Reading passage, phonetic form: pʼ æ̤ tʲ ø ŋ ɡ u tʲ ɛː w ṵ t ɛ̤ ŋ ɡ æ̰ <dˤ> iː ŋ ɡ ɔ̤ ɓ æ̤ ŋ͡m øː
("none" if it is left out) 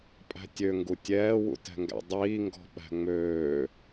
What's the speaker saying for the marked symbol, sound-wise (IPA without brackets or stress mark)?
dˤ